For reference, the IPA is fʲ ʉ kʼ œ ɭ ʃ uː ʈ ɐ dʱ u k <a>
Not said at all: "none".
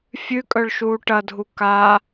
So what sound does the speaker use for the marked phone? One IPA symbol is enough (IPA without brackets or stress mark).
a